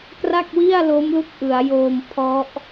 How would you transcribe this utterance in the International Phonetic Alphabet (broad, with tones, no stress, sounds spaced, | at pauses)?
k r a˥˩ k̚ w i˥˩ a̯ l o˦˥ m l u˦˥ k̚ ʔ ɯ˩˦ a̯ j oː˧ m pʰ ɔ˦˥ ʔ